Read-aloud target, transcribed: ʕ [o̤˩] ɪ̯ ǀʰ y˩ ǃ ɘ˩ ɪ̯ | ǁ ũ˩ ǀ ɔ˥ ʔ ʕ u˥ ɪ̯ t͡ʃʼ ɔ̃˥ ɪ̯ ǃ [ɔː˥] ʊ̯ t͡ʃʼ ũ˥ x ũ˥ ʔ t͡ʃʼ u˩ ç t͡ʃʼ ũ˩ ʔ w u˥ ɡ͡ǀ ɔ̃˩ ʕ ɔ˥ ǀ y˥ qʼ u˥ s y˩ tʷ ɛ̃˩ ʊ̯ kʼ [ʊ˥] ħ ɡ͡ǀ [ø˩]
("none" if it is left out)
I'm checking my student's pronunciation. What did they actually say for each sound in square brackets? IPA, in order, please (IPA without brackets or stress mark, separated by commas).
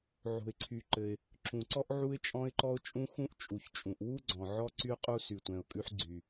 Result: o̤˩, ɔ˥, ʉ˥, y˩